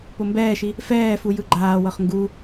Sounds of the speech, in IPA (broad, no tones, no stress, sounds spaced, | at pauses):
p o m b ɛː ʃ i | f ɛː f u j ɯ ɡ͡ǃ aː w ɤ χ ŋ ɡ u